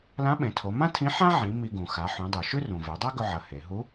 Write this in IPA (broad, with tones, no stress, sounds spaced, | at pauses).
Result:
l ã˧˥ ɓ ẽ˩˧ tʰ o˩˧ m ã˥ tʰ ĩ˧˥ ħ ã˥ ʕ ĩ˩˧ m i˧ ɡ ũ˩ x a˩˧ ħ ũ˩˧ dˤ u˩ ʃ ʉ˥ r ũ˩ v e˩˧ dˤ a˥ ɡ ɵ˧ ʕ ɐ˩˧ h e˩˧ ɦ u˧˥